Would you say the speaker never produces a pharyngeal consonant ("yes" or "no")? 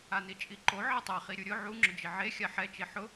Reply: no